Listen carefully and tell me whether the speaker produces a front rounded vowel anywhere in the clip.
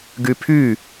yes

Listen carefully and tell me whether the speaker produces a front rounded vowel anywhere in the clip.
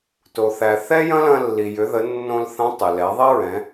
yes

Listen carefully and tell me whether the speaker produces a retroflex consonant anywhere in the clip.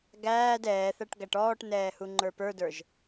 yes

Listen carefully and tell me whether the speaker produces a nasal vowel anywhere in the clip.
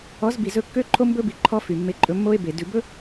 no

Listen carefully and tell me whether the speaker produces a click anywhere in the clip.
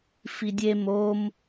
no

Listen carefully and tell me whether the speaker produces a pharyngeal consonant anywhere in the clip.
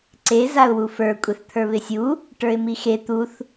no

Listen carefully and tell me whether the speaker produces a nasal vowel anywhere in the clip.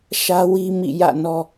no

